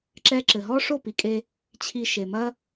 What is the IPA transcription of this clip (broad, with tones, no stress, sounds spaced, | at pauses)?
ǁ ɛ˧ ǁ ɘ˨ ɦ ɔ˦ ʂ o˦˨ p i˨ kʼ e˧ | t͡ɕʰ i˧ ʃ e˨ m ɐ˦